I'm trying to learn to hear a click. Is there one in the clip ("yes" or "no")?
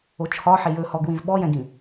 no